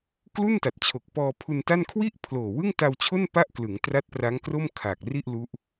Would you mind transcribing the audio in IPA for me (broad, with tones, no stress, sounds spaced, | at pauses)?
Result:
k l u˥˩ n t a˨˩ t̚ t͡ɕʰ o˨˩ k̚ p ɔː˧ pʰ u˧ n t a˥˩ n kʰ w i˥˩ ʔ pʰ l oː˨˩ w ɯ˥˩ ŋ t a˧ w t͡ɕʰ o˥˩ n p a˥˩ ʔ k l ɯ˩˦ ŋ t r a˦˥ t̚ p r a˦˥ ŋ k r o˥˩ m kʰ aː˨˩ k̚ r i˥˩ ʔ l u˦˥ ʔ